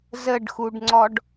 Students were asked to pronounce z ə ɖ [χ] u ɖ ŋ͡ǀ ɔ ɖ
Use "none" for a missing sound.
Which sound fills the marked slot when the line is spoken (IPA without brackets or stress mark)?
x